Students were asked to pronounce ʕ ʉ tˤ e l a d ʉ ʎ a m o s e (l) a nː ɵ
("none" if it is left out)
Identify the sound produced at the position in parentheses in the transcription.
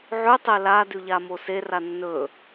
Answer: r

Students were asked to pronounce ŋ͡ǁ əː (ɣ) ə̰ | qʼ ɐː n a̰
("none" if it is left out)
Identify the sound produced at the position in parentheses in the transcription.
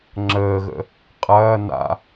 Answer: ɣ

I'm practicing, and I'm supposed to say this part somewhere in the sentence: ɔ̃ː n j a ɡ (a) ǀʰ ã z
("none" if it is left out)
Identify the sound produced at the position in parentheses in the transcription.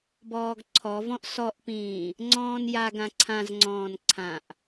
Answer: ã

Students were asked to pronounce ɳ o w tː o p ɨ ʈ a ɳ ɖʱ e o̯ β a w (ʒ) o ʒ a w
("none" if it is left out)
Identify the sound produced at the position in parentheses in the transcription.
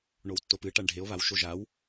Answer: ʃ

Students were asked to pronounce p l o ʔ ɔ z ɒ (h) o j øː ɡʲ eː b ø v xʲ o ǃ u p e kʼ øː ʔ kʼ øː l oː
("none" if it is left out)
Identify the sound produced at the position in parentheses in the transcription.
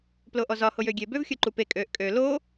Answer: h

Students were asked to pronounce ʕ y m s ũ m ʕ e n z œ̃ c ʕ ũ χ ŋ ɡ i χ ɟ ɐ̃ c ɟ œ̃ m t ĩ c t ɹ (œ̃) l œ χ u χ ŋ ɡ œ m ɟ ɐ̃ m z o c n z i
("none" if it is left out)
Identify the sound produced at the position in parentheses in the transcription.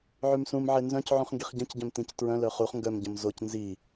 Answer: œ̃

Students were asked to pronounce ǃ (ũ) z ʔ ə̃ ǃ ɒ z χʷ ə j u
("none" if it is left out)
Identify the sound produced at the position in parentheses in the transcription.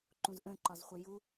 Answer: ũ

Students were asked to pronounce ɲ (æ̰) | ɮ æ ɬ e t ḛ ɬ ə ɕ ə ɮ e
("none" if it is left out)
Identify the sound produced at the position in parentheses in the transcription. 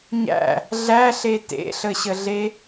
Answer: æ̰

